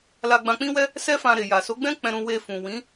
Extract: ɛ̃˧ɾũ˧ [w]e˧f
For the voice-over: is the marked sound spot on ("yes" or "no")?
yes